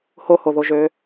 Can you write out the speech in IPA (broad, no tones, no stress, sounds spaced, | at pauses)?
h o h o ð o ʒ ø